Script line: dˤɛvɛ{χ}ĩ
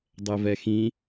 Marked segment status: incorrect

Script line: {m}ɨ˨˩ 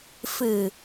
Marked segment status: incorrect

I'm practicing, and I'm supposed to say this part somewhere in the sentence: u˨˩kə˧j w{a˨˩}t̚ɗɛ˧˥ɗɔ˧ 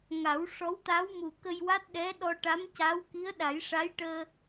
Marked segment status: incorrect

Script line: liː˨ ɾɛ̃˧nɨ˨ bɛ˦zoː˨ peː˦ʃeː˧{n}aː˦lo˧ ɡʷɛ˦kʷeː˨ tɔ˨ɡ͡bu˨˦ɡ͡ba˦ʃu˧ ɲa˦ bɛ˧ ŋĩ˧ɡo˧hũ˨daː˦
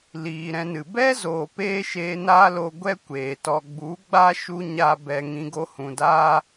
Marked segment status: correct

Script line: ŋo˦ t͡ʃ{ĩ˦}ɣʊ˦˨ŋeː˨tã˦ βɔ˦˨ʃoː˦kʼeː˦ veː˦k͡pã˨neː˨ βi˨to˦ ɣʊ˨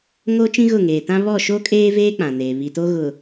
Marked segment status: correct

